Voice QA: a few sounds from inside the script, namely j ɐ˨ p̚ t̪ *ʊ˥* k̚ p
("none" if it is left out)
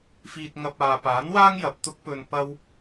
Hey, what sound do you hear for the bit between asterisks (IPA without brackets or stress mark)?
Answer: ʊ˥